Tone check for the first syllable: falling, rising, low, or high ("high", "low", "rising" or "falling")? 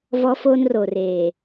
high